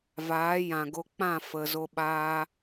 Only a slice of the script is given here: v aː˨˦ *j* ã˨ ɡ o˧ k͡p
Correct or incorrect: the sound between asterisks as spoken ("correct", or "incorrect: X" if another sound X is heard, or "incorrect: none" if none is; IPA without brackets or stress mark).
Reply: correct